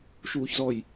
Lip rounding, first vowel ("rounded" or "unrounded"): rounded